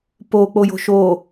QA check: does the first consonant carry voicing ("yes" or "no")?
no